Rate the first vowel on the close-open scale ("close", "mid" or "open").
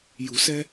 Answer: close